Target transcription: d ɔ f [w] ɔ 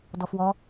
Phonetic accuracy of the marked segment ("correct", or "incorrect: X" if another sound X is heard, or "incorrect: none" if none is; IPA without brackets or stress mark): correct